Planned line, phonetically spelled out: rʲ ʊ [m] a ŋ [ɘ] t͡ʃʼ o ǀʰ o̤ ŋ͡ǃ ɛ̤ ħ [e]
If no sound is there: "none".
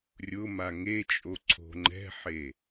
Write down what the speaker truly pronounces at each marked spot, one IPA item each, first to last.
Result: m, e, e

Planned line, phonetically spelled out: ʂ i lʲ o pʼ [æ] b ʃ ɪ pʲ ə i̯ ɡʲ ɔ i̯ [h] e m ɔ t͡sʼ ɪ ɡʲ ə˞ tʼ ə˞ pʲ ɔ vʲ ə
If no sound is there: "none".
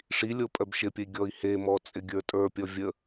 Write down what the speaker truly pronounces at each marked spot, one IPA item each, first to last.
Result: œ, h

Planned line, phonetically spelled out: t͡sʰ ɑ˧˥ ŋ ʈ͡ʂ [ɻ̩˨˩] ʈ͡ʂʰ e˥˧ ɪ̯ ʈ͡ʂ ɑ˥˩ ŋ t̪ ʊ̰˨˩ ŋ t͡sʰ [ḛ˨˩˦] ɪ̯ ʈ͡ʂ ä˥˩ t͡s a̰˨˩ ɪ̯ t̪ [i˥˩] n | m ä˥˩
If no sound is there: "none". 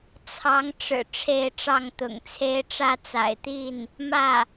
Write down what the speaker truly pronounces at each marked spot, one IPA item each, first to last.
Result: ɻ̩˨˩, e˥, i˥˩

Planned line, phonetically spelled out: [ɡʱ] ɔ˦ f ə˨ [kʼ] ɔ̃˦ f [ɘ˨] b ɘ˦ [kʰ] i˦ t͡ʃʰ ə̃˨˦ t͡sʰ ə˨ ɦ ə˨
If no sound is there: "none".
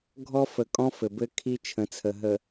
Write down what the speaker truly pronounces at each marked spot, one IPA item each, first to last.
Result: ɡʱ, kʼ, ɘ˨, kʰ

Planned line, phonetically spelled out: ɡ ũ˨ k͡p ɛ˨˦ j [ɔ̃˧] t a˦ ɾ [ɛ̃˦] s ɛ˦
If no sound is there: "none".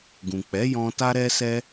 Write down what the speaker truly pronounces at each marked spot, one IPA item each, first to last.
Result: ɔ̃˧, ɛ˦

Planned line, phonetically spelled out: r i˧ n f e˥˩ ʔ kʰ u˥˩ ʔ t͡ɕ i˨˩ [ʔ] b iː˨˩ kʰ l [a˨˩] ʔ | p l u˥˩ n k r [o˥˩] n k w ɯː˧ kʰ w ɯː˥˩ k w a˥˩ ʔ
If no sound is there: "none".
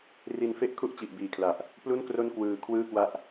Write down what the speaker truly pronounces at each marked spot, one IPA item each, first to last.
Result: ʔ, a˨˩, o˥˩

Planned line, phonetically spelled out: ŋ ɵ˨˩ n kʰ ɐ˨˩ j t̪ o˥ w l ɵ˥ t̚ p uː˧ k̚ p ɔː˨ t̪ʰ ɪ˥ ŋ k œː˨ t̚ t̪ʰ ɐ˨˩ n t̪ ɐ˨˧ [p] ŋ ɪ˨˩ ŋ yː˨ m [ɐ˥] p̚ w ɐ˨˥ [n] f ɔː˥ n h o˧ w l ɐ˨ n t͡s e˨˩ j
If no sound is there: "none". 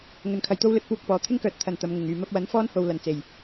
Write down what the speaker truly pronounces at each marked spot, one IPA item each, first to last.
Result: m, ɐ˥, n

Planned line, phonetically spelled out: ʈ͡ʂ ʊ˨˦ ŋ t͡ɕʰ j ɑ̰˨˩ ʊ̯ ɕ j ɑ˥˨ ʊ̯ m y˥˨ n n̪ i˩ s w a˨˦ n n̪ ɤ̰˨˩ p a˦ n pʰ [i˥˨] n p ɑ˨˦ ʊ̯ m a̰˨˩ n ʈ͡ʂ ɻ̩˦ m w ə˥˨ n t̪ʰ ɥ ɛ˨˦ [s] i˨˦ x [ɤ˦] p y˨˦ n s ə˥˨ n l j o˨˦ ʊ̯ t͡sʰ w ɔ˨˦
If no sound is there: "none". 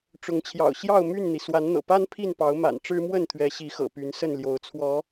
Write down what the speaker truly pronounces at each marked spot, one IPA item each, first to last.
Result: i˥˨, ɕ, ɤ̰˨˩

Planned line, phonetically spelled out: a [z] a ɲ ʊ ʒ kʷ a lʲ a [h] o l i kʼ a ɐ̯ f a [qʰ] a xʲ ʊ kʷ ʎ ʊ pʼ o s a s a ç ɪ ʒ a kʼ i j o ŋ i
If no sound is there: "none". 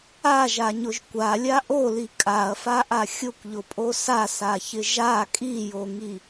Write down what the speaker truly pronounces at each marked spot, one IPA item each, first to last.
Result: ʒ, ʔ, ʔ

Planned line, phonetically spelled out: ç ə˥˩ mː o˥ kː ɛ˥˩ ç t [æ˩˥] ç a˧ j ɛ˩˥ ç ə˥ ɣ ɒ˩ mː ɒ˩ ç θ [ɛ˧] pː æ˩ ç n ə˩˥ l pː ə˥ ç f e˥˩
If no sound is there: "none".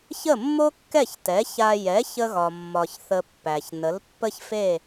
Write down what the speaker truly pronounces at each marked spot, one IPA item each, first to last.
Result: ɛ˩˥, ə˧

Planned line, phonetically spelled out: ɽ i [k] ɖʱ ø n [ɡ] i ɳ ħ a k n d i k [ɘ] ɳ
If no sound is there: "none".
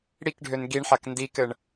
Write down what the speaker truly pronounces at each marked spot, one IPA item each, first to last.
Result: k, ɡ, ɘ

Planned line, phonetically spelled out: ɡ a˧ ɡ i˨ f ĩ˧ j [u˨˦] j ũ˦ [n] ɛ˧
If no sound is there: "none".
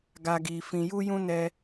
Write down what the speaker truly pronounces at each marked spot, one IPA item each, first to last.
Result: u˦, n

